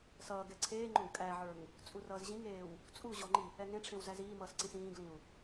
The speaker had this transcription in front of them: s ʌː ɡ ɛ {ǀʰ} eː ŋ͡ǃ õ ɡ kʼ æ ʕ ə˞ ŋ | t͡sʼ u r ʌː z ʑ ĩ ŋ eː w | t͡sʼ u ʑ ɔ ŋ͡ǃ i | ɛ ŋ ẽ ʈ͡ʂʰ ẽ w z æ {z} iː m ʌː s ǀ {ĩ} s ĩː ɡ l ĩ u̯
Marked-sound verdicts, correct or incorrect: correct, correct, correct

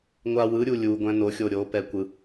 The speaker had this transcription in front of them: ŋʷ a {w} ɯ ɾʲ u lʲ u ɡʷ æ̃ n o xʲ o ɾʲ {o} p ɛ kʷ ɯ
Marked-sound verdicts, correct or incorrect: correct, correct

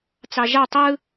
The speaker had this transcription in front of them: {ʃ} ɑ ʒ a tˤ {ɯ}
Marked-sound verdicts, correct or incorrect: incorrect, correct

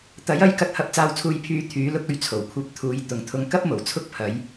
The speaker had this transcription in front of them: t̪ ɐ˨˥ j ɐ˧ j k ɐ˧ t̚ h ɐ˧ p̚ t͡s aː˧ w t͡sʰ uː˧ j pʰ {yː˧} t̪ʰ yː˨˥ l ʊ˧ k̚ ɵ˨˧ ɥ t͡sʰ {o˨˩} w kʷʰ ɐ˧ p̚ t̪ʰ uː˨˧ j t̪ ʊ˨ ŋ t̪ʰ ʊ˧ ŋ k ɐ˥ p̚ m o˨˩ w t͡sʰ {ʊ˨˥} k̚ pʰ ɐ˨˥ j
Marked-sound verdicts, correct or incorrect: correct, correct, incorrect

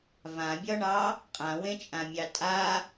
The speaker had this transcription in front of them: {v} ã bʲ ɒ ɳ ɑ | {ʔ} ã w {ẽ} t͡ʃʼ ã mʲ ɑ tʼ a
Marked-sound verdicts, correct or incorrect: correct, incorrect, correct

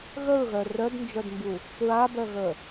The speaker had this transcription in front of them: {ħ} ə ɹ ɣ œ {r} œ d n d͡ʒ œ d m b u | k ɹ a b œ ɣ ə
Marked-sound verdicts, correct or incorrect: incorrect, correct

